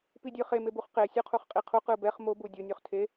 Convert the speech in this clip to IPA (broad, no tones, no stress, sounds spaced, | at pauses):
p i dʲ ɯ χ e m e b u χ q e sʲ o qʰ u χ qʼ i qʰ u q ɯ b ɛ χ m o b u dʲ o nʲ u χ tʰ e